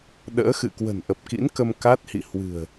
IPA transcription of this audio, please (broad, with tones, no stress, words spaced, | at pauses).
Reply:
ɗə̰ː˧˥ xɨ̰˧˨ kwə̤˨˩nʔə˨˩p̚kḭ˧˥n kə˧mka˦˥t̚hḭ˧˨ hwɨ̤˨˩ə̯